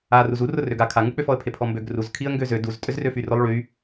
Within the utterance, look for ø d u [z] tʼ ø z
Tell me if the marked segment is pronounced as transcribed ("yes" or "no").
yes